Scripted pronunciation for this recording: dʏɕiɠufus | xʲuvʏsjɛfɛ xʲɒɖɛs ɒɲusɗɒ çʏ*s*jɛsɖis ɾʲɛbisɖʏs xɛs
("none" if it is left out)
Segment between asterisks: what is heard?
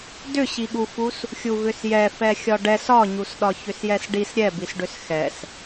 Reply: s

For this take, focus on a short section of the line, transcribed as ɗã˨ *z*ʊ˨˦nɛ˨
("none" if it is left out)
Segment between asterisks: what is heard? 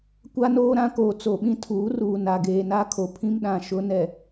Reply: ʃ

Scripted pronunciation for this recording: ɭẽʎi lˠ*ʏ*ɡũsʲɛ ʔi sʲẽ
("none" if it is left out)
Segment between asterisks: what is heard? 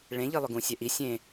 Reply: ʏ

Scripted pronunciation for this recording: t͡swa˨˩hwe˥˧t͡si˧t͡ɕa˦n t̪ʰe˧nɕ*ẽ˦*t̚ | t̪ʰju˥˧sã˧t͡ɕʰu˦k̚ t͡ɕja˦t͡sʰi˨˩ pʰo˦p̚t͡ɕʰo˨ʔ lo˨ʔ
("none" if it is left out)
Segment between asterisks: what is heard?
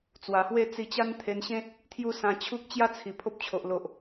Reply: ẽ˦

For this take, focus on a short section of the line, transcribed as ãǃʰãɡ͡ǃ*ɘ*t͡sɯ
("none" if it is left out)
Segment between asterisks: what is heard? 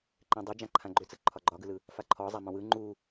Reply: ø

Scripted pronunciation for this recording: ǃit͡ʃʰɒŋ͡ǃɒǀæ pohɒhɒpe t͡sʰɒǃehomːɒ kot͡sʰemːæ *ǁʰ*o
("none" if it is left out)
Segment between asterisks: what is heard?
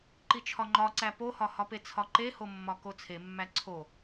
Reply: ǀʰ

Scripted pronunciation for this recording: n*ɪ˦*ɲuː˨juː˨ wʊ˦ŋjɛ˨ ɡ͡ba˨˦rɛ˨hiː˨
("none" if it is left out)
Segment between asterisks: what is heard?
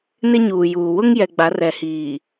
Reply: ɪ˦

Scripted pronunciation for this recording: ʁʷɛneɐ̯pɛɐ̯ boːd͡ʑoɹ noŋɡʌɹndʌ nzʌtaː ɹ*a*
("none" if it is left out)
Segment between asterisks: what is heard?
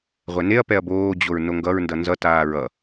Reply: ʌ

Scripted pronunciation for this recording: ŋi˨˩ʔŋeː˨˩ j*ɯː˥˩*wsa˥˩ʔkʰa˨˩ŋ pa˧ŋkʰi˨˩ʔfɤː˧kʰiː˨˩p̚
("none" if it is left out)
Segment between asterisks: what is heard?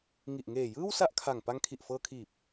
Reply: ɯː˥˩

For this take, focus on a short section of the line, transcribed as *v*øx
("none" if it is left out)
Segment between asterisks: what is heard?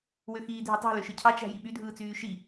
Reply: w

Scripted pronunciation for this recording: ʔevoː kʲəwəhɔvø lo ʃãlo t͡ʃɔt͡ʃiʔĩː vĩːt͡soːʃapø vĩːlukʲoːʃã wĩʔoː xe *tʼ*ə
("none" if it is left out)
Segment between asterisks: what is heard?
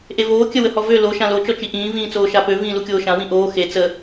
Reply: t͡s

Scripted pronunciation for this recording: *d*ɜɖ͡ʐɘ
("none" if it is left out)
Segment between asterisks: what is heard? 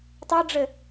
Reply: tˤ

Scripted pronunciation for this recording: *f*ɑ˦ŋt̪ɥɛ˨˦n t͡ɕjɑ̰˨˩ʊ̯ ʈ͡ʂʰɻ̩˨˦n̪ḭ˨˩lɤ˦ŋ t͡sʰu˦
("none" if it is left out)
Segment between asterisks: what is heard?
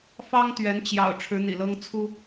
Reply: f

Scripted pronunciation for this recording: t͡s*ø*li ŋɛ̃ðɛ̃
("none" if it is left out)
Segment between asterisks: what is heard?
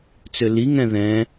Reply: ø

